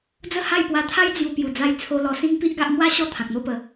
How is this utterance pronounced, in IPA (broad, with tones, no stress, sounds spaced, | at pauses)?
d͡z ə˥˧ h a˥˧ j p w a˧ t̪ʰ a˦ j d͡z j u˧ p j u˨˩ d͡z a˧ j t͡sʰ o˧ l ɔ˧ s ĩ˦ ŋ p i˦ ʔ ɡ a˦ ʔ m w a˦ ɕ ɔ˥˧ t̪ʰ ã˨ k̚ n̪ o˥˧ p ə˨˦